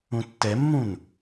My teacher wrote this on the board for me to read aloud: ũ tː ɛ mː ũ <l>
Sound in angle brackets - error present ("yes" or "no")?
yes